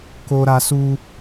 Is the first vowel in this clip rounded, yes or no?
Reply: yes